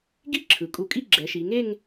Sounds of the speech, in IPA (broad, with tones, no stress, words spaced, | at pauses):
ɡi˥ ǁʰɯ˩˧kʼu˧˩kʼi˥˧ ɡ͡ǁɛ˩˧ʃi˩˧ ŋe˥˧ŋ